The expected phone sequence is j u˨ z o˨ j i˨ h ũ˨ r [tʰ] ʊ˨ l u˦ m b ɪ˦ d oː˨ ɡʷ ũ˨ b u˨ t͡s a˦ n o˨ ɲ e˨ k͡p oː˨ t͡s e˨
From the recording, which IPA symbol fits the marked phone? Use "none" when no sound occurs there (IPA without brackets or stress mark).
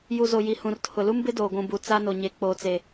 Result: tʰ